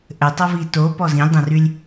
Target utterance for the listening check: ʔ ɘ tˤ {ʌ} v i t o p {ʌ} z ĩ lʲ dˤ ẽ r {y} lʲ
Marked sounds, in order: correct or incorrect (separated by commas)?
correct, incorrect, correct